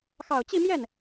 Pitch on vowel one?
low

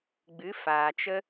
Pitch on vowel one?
rising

